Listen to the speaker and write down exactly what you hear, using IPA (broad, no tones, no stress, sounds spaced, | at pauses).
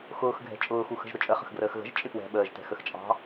x ʊː x ɡʱ ɛ̤ t͡ʃʼ ʊː x u x ə̤ ʒ ɾ ʊ t͡ʃʼ ə χ ə̤ x ɡ r əː x ɣ ə̤ ʒ t͡ʃʼ ɪ p w ɛ̤ ɓ əː ʒ t ɛ̤ x ə x t͡ʃʼ ɑ̤